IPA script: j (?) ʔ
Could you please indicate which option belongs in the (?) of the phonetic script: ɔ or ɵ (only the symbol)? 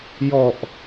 ɔ